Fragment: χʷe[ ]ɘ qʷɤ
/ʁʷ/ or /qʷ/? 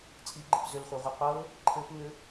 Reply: ʁʷ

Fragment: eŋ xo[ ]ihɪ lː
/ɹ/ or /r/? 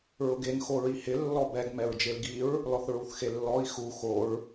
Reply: ɹ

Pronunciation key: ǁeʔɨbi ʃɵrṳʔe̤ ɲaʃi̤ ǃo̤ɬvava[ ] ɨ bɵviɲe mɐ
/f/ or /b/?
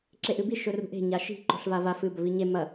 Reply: f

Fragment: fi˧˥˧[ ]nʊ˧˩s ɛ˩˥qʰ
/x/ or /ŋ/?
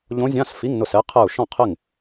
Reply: ŋ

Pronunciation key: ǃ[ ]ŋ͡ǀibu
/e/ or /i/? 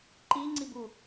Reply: i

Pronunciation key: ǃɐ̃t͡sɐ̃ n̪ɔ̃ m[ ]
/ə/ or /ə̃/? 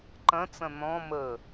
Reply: ə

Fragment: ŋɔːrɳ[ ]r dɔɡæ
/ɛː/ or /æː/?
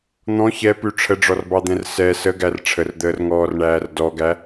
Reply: æː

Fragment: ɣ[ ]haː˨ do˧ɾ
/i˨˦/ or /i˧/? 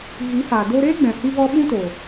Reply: i˨˦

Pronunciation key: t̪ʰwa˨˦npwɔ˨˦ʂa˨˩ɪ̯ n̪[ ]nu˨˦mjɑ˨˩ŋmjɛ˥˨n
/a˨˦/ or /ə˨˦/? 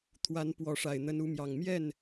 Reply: ə˨˦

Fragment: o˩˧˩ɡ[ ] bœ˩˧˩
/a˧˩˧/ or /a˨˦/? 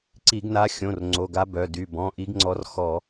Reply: a˨˦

